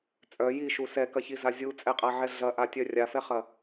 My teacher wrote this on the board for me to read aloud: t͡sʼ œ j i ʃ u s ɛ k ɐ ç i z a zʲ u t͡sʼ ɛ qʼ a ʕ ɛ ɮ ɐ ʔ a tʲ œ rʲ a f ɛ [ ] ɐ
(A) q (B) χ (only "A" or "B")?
B